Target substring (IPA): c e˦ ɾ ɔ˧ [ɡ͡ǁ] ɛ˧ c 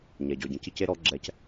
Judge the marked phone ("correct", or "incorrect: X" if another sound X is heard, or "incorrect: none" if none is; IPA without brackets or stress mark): correct